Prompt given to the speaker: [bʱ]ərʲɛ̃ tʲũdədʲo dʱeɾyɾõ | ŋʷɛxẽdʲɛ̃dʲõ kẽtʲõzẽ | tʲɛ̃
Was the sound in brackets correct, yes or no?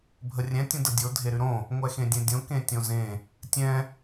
yes